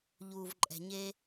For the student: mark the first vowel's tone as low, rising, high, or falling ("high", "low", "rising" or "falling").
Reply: low